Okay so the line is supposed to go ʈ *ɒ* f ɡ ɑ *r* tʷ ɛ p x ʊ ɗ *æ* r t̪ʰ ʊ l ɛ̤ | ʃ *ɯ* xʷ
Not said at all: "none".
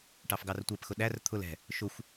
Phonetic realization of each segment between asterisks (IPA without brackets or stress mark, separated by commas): ɑ, r, æ, ʊ